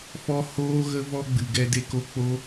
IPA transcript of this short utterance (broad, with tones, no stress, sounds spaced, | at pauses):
f ɔ˦ h oː˦ ɣ ə˦ v ɔ˦ ɡ͡b ɨ˨ ɡ ɛ˧ d e˧ k o˧ k͡p o˦